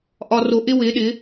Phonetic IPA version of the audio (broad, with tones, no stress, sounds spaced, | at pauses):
ʔ ɒː˧ r o˧ ʔ ɪ˦ w ɪː˨˦ ɗ ɪ˨˦